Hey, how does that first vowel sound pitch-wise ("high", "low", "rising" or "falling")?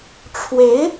rising